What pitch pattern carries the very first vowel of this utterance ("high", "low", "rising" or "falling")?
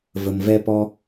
low